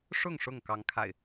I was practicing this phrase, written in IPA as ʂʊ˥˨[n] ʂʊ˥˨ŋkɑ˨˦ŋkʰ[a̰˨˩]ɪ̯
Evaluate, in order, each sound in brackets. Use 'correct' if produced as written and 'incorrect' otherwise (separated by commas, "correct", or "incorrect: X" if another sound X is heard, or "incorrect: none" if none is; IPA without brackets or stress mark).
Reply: incorrect: ŋ, correct